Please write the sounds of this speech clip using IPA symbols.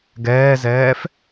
ɡɛːzɛːf

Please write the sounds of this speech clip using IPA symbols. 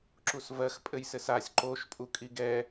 ǁusvɜx pʼɘjsɘsasʲ ǃoʃ pʼukʼiɡɛ

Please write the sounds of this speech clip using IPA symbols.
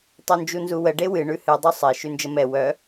tˤœnd͡ʒunzuwə ɖewɨ ɳʉhɨ dˤusˤe ʃʉnd͡ʒəmɛ wœ

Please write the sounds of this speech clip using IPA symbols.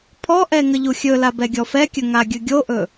pʰɔʔɛ ŋəʎuxʲɵla bɛɡʲɔfɛkʲɵ ŋaɡʲɵɡʲoʔɵ

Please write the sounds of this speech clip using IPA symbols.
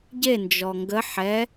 ɟe nd͡ʒɔŋɡə ħɛ

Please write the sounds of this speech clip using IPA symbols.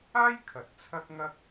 aː˥jkʰɐ˨t̚ t͡sʰɐ˥k̚ŋɐ˥k̚

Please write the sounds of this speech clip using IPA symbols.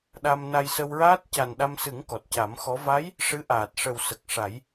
ɗa˧m na˧jsə˧wɹaː˦˥t̚ ca˨˩nɗa˧msɨ˨˩˦ŋ kɔ˨˩t̚ca˨˩˦mxɔ˧˥ va˧˥j | ʂɨ˧˥ʔaː˨˩t̚ʂə˨˩w sə˨˩k̚ʂa˨˩˦j

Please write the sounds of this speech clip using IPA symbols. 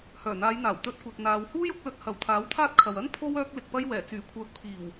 hœː˨˩n̪aː˨˧jn̪aː˨˩w t̪ɵ˧t̚kʷɐ˨t̚n̪aː˨whuː˥j ʊ˧k̚lɵ˧t̚ hɐ˨wt̪ʰaː˨˥wt̪ʰaː˥t̚kʰɐ˨w ɐ˥n pʰo˥w œː˧k̚lɪ˨k̚pɐ˧j wɛː˨˩ t͡syː˨˩kʷʰœː˨k̚pʰiː˨˩w

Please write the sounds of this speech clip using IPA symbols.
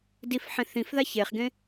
difħẽ θĩfða çeχɡẽ

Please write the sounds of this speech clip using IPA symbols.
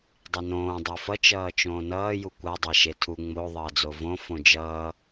dˤinõː dˤefʌ t͡ʃʌːt͡ʃõːnʌː jukʷa dˤaʃetʰu ŋ͡mo ðˤʌːd͡zovõ fõd͡ʒʌː

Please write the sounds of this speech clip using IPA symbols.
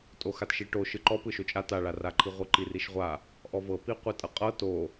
tʼoxatʃiʈo ʃɯǃɔpɯ ʃot͡ʃʼa taɭaraǃʰi ʁʷɯǃiriʃʁʷa | ʔɔvɤ piqʷitʼɤqʼɤ to

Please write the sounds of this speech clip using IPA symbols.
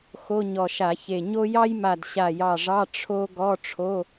xo˧˥˧ɲɔ˧˩ʃa˧˩˧çe˧˩ ɲo˥ jɑ˥jma˧˩d ɕa˧˩jɑ˧˩ʐɑ˧˥˧ ʈ͡ʂʰo˥ ɡɔ˧˥˧ʈ͡ʂʰo˧˥˧

